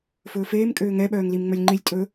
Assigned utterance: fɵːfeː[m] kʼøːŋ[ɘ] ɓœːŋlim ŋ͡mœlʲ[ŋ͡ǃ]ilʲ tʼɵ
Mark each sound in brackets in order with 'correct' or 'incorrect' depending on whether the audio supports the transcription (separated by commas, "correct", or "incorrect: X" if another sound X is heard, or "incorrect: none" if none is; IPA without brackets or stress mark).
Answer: correct, incorrect: ɛ, correct